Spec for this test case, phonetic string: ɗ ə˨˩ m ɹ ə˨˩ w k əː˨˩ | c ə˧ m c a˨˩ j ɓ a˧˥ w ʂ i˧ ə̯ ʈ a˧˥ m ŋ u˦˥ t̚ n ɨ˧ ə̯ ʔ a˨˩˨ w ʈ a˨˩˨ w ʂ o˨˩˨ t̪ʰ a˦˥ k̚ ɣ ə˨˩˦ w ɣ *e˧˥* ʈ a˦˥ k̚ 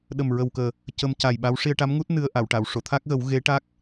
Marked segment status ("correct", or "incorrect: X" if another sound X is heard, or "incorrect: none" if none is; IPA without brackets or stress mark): correct